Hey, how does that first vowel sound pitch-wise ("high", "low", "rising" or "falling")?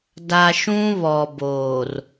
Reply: low